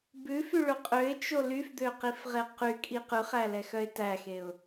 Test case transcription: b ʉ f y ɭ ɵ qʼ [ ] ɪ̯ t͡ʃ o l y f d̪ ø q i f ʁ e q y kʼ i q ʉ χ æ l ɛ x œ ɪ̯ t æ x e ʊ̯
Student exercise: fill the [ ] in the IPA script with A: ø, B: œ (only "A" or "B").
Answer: A